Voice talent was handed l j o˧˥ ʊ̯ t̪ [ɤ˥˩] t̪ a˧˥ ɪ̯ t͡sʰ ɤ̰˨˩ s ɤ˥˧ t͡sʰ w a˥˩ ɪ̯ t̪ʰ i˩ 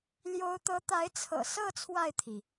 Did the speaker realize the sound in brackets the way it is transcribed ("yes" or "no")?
no